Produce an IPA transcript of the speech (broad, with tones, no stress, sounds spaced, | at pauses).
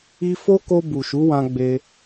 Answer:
i˧ f o˦ k o˧ b u˨ ʃ u˨˦ w ã˧ ɡ͡b e˧